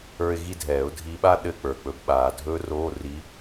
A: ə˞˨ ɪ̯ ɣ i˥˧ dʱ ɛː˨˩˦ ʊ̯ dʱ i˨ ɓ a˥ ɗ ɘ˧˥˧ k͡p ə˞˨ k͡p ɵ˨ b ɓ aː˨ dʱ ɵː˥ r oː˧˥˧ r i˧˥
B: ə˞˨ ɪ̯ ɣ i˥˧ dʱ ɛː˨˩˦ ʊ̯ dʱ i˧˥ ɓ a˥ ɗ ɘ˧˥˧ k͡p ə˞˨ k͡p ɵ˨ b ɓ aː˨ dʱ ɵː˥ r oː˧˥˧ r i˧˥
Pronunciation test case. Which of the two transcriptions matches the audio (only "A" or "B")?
B